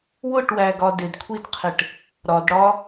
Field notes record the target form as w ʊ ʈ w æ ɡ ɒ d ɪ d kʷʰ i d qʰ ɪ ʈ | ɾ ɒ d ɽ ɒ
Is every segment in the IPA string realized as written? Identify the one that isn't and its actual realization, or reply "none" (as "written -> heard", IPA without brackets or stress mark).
none